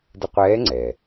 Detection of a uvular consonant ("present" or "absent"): present